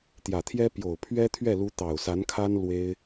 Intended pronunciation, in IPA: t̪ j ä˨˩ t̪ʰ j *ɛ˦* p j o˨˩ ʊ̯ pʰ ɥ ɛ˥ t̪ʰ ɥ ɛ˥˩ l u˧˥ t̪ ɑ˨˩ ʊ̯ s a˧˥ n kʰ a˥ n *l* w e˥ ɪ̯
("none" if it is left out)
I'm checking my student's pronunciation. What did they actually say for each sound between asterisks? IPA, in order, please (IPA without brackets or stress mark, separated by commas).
ɛ˥, l